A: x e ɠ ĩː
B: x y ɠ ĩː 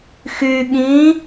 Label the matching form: B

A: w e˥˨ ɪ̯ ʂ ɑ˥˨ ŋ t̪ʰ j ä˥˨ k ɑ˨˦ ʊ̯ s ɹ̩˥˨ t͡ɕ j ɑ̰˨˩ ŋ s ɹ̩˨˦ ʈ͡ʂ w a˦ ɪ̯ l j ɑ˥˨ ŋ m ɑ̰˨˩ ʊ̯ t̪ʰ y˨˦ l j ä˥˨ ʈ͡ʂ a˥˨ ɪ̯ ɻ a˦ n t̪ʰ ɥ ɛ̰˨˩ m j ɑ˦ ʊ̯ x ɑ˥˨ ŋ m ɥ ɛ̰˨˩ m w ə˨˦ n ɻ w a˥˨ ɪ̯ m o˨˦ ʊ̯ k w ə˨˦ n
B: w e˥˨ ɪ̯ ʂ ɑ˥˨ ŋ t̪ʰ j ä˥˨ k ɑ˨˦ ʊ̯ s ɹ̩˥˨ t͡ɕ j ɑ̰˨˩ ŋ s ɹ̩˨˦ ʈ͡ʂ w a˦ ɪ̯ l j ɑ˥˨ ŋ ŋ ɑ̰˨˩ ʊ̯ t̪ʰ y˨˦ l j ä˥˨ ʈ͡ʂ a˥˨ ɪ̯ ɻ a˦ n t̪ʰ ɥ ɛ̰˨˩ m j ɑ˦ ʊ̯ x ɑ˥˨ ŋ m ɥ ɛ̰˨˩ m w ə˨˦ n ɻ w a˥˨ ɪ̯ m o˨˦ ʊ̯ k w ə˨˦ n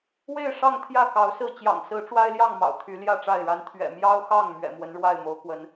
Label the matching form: A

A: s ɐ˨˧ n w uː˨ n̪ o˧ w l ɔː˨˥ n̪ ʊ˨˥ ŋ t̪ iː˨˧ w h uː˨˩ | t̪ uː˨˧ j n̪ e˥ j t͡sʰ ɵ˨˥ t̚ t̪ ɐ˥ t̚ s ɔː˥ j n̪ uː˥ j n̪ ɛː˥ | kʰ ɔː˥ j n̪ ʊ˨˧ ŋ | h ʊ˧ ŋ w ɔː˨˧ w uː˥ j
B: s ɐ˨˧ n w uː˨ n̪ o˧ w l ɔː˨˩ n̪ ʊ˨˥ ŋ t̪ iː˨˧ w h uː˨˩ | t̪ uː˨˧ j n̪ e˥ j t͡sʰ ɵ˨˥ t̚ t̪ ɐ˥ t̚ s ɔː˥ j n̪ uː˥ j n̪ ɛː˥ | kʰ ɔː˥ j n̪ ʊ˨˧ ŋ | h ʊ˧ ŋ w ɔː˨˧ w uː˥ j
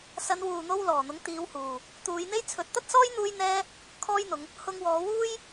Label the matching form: B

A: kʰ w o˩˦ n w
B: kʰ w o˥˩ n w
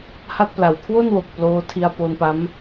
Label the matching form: B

